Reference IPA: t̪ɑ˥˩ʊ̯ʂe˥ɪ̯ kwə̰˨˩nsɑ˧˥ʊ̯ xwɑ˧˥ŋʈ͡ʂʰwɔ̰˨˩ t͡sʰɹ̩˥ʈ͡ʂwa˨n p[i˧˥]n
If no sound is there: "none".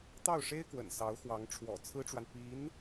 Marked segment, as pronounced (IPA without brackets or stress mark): i˧˥